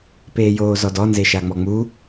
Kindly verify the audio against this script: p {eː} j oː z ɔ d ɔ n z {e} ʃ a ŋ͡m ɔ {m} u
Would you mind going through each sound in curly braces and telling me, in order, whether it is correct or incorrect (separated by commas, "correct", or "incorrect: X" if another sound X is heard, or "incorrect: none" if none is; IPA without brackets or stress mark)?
correct, correct, incorrect: ŋ͡m